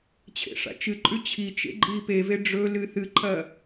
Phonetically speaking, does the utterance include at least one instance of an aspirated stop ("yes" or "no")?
yes